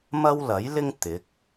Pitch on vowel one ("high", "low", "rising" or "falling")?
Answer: high